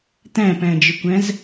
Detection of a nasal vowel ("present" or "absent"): present